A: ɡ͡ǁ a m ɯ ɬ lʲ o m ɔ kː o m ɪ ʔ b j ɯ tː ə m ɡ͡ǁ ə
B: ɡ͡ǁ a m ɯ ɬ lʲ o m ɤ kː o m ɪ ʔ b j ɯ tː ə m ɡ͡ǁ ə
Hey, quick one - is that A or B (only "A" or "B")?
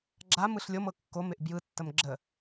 B